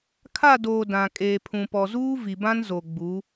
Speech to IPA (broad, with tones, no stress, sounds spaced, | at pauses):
kʰ a˦˨ d oː˨ d ã˨ kʼ eː˨ pʰ ũ˨ p ɔ˨ z uː˦ v i˨ b ã˦ n z o˨ ɡ͡b u˨˦